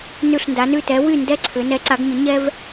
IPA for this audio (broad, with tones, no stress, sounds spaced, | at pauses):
n ʉ˥˧ ɬ n d a˧˥ n ʉ˥˧ t ɛ˧˥ w y˥˧ n d ɛ˥ ǀʰ ʏ˧˥ n ɛ˧˥ ǀ a˧˥ ɡ ɲ ʏ˧˥ ɲ ɛ˥ v